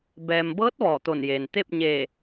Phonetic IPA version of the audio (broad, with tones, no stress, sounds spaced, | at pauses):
b ɛː˩ m b ɤː˧˥ t̚ ʋ ɔː˧˩ t̪ o˧˩ n j eː˩ n t̪ e˥˨ p̚ ɲ eː˧˩